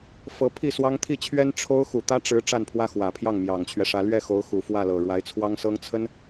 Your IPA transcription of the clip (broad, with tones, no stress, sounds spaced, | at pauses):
f ɤ˧˥ pʰ i˥˩ s w ɑ˥ ŋ t̪ʰ i˥˩ t͡ɕʰ ɥ ɛ˥ n ʈ͡ʂʰ o˥ ʊ̯ x u˨˩ t̪ ä˥ ʈ͡ʂ ɻ̩˧˥ ʈ͡ʂ a˥˩ n pʰ w ä˥ x w ä˨˩ pʰ j ɑ˥˩ ŋ m j ɑ˨˩ ŋ t͡ɕʰ ɥ ɛ˦ ʂ ä˧˥ l ɥ ɛ˥˩ x o˧˥ ʊ̯ x u˨˩ f w ä˥˩ l ɤ˨˩ ɻ w a˧˥ ɪ̯ t͡sʰ w ɑ˥ ŋ s ɤ˥ ŋ t͡sʰ ə˥ n